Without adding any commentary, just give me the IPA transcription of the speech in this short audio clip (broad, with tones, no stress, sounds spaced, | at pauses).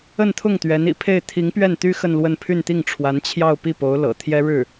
ə˥˧ n t̪ʰ ʊ˥˩ ŋ t̪ ɥ ɛ˧˥ n ḭ˨˩ pʰ e˥˩ ɪ̯ t̪ʰ i˧˥ ŋ p ɥ ɛ˥˩ n t̪ y˥ x ə˥˧ n l w ə˥˧ n pʰ y˥˧ n t̪ i˥˩ ŋ ʈ͡ʂʰ w a˧˥ n t͡ɕʰ j ɑ˥˧ ʊ̯ p i˥˩ p o˧˥ ʊ̯ l ɤ̰˨˩ t̪ʰ j ɛ˥ ɻ ɻ̩˥˩